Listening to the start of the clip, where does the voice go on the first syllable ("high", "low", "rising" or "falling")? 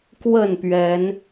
falling